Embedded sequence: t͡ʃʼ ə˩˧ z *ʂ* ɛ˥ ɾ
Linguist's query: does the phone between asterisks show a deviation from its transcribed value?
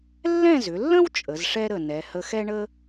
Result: no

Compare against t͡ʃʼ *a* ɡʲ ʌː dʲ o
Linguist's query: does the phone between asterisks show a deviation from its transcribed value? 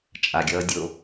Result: no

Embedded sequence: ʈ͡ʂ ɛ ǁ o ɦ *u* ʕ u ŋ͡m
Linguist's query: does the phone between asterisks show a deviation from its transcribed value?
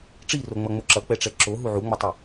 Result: no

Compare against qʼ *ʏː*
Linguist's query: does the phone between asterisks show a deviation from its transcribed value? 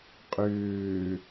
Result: no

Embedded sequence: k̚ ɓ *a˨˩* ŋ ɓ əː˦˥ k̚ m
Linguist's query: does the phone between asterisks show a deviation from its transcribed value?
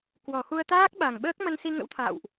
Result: no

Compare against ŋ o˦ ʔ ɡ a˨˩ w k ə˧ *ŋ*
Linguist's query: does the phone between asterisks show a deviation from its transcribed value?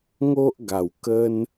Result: yes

